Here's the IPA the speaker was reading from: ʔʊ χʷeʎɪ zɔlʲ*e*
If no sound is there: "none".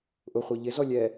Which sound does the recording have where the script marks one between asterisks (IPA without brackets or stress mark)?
ɛ